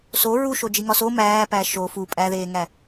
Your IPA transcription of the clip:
s o ɹ u ʃ o d͡ʒ i ŋ ɒ s o m æː p æ ʃ o f u pʼ æ ð eː ŋ æ

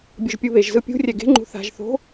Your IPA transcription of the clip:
bʲ o ʒ pʲ u β e ʒ z ɯ pʲ ṳ rʲ ɛ ɡ e̤ ŋ͡ǃ ṳ θ a̤ ʒ θ o̤

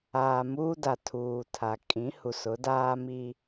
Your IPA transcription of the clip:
aː˨ m uː˦ d a˨ tʰ uː˨ tʰ a˨ kʼ ĩ˨˦ h u˨ s ʊ˨˦ d aː˦ m i˦

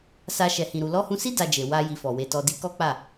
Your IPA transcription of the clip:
s a˧ ʃ ɛ˨ h ĩ˨ ɾ u˨ l ɔ˧ h ũ˧ s i˦ d a˧ d͡ʒ e˨ w a˧ j i˧ f ɔ˨ w e˧ t ɔ˧ d i˧ k ɔ˦ k͡p a˦˨

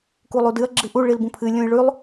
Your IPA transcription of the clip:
k u lˠ u d ɨ ɐ̯ ɡ͡ǁ ɨ ʔ u ɭ i l b ũ pʰ ɨ lʲ ũ j ɭ ʉ lˠ

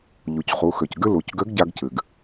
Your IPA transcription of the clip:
ʎ u˩ c χ u˩˧ x ø˩ c ɡ ɨ˥ l u˩˧ c ɡ ø˧˥ ɡ ɟ a˧ ɡ c ɨ˩ ɡ

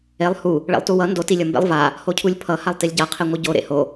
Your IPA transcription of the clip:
e lˠ h u | ɭ ḛ lˠ t u w ʌ n d o t i lʲ ʌ m b ḛ lˠ v a | h o cʰ u lʲ pʰ ʌ h a lˠ t i lʲ ɟ a qʰ ɛ ŋʷ ɯ ɟ o ɾ ḛ h o

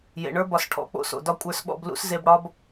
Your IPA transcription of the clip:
j ḛ˨ ɳ ə˞˦ b ɒ˨ s ʈʰ ɔ̰˨˦ k͡p o̰˨ s o̰˨ d ɒ˦ kʷʼ ə˞˧ s ɓ ɔ̰˧ b l ṵ˦ s z e˧ b ɽ ɒ˦ b

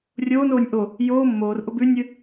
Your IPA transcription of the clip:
rʲ oː n oː nʲ ʔ o | j oː mː oː r ʔ ʊ b ʉ nʲ ɨ

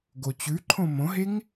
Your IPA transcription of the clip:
ɡ o t͡ɕ ʉ ǃʰ õ m õ ɦ e ŋ

